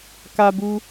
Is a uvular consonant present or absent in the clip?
absent